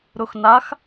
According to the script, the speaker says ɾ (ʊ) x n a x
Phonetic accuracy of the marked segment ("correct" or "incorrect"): correct